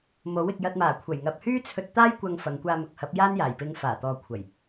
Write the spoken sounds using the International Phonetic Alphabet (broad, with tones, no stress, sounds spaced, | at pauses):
m o˨˥ w ɪ˨ k̚ j ɐ˧ t̚ m aː˨˩ kʷʰ ɐ˨˩ j ŋ ɐ˨ p̚ h yː˥ t͡sʰ ɵ˧ t̚ t̪ aː˥ j kʷ ɐ˧ ŋ f ɐ˨˧ ŋ kʷ aː˧ m ʊ˨˥ k̚ h ɐ˨˥ p̚ j aː˥ n j aː˨˩ j p ɪ˧ ŋ f aː˨˩ t̪ ɔː˨ kʷʰ ɐ˨˩ j